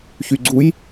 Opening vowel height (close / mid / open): close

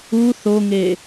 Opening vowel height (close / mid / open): close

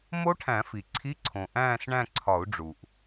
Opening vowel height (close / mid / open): mid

